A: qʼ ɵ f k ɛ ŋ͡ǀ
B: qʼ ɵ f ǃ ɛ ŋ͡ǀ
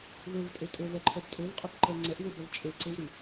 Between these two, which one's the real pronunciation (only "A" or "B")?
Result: B